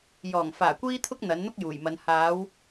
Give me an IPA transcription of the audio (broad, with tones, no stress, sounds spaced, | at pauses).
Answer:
j ɔː˨˩ ŋ f aː˨˩ kʷ iː˧ t̪ʰ ʊ˧ k̚ n̪ ɐ˨˥ n n̪ ʊ˥ k̚ j uː˨˩ j m ɐ˨˧ n h aː˨˧ w